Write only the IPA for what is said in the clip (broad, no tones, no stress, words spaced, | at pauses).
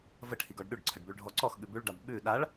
vəʈʰiɡ ɔɖɗʉɖǀʰəɖ bʉɭɖʱɔǀɔxɠʉ bʉɭɖab ɓʉ ɗaɭ